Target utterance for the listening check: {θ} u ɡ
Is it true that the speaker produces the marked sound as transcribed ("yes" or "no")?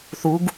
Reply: yes